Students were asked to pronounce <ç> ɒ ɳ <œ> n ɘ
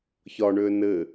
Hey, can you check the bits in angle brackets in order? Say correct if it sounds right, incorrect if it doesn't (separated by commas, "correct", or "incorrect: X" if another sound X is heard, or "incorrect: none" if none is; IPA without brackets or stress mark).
correct, incorrect: ø